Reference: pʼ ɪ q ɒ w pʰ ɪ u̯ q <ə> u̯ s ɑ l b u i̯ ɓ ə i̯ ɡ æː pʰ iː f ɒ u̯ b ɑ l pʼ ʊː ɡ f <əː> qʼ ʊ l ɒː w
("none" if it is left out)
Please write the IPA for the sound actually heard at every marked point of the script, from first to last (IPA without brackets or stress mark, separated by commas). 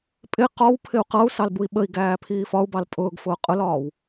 ʌ, ʊː